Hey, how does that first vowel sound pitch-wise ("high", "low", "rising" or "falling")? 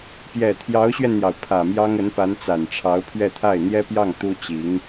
low